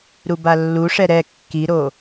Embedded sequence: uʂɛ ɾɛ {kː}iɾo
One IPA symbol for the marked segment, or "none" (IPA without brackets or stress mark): kː